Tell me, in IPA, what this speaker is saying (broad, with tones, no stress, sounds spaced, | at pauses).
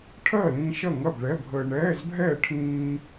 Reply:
ʈʰ ɜ˥˨ l ĩ˧ ʃ ɐ˥˨ ŋ ɐ˥˨ b ɭ ɛ˧˥˧ bʱ əː˧ ɳ ɛː˧˥˧ z bʱ ɛː˥˨ ʈʰ ĩː˧